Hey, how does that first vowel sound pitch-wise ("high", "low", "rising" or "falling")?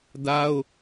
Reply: high